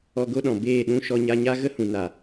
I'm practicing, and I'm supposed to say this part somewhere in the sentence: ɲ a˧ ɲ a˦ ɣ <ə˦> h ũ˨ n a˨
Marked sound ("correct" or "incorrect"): correct